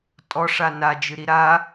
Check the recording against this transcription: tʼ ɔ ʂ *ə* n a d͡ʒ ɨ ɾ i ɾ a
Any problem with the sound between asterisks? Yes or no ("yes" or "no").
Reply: yes